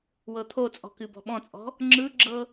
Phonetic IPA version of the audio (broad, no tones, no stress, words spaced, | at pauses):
wɤt̪ʰot͡sʼɔ̤ kɨbɔ̤ɓɔ̃t͡sʼɔ̤ | ŋ͡ǁɯɡ͡ǁɤ